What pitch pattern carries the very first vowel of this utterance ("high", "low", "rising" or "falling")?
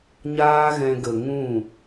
high